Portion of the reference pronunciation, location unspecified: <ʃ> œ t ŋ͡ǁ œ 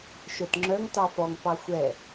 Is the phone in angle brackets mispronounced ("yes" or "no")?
no